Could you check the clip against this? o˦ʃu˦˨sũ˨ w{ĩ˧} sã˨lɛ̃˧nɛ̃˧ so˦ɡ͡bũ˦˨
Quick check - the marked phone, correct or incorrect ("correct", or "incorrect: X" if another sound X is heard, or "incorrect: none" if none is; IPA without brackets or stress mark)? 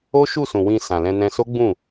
incorrect: ĩ˨